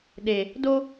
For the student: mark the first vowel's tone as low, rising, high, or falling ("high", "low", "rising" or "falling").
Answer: low